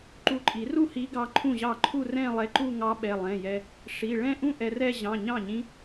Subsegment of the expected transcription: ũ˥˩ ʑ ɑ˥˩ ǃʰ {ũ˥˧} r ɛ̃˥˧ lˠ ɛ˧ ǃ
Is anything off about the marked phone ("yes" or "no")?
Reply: yes